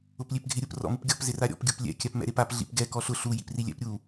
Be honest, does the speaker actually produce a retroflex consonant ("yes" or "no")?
no